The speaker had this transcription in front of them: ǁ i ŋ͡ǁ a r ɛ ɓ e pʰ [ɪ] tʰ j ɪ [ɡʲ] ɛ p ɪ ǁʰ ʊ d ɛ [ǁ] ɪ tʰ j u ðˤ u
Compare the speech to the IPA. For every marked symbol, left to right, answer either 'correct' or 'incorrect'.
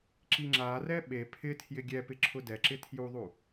correct, correct, correct

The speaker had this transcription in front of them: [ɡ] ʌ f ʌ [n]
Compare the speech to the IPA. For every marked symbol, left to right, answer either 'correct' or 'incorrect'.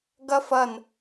correct, correct

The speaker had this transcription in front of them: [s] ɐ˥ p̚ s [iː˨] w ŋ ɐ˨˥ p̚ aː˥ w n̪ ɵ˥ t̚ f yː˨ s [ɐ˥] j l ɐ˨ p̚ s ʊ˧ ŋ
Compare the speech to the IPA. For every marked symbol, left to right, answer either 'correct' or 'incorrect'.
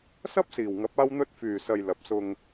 correct, correct, incorrect: ɐ˧

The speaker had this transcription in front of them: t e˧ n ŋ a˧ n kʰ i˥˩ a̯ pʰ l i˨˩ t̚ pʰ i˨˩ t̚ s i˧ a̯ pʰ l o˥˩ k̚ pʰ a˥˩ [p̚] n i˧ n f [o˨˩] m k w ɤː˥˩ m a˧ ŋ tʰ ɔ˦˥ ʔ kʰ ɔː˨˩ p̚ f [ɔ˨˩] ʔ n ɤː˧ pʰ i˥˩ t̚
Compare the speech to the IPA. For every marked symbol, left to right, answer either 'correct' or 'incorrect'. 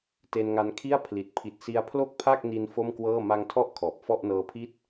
incorrect: k̚, incorrect: o˥˩, incorrect: ɔ˥˩

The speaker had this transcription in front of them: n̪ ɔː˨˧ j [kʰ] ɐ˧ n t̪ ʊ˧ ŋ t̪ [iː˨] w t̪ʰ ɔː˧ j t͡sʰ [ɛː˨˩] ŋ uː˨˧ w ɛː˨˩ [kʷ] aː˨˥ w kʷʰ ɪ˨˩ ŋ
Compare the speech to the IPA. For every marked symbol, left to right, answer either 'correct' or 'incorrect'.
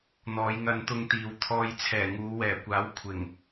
incorrect: ŋ, correct, correct, correct

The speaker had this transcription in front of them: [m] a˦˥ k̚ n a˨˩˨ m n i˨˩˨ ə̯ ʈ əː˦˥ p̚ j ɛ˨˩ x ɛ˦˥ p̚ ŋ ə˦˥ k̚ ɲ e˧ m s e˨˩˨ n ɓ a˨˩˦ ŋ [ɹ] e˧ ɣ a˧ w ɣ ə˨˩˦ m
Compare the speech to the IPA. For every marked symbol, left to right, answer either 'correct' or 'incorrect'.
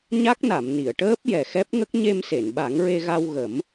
incorrect: ɲ, correct

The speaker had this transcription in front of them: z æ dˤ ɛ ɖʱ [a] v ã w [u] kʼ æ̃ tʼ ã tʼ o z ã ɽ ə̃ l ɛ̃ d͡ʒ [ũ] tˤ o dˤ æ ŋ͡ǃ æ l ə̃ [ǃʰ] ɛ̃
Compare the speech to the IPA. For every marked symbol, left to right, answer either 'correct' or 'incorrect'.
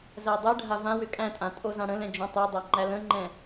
correct, incorrect: ʏ, incorrect: õ, incorrect: ŋ͡ǃ

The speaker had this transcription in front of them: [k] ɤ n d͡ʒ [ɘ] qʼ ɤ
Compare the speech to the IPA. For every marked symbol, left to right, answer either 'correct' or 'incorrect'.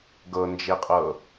incorrect: ɡ, incorrect: e

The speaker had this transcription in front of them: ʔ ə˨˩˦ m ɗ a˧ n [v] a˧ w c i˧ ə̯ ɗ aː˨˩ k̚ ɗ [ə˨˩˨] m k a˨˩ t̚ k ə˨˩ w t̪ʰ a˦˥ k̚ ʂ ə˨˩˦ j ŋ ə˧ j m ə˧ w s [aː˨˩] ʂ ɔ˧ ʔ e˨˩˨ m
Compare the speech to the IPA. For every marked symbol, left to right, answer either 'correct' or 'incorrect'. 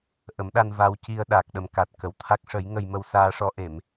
correct, incorrect: ə˨˩, incorrect: aː˧

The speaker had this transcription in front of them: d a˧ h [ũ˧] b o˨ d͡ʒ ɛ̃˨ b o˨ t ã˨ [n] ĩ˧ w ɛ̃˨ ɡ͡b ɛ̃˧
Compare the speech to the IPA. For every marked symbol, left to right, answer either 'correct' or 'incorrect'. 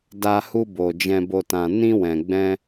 incorrect: u˧, correct

